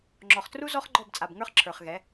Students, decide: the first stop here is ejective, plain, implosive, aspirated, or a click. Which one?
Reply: click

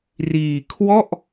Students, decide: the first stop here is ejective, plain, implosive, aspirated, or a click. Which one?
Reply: aspirated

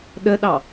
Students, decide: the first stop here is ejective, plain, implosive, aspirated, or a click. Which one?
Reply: implosive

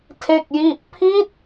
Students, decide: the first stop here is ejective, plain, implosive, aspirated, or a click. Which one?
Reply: aspirated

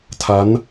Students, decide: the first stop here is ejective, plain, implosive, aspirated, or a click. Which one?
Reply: aspirated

